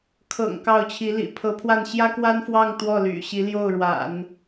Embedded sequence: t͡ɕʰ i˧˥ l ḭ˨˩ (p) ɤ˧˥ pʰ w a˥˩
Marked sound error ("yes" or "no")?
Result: yes